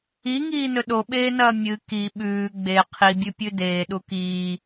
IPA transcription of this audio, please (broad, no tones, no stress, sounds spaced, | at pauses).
i ŋ iː n ɵ ɗ o ɓ eː n ɐː mʲ ɨ k i ɓ ʉː ɡ͡b e qʰ i bʲ ʉ pʲ ʉ d eː ɗ u k iː